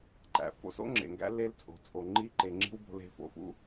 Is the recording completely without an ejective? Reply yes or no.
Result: no